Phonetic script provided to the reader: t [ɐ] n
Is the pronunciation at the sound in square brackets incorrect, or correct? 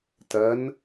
correct